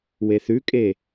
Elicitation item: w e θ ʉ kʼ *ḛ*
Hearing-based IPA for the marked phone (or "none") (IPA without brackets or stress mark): e